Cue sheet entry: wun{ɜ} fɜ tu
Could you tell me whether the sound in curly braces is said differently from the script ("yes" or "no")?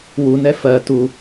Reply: yes